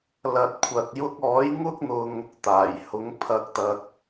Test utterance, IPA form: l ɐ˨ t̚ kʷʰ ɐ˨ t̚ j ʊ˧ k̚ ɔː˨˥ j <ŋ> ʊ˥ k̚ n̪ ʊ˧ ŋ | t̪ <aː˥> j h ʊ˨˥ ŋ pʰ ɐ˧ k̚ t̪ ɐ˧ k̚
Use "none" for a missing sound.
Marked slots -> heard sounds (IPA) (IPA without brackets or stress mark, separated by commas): ŋ, aː˨˩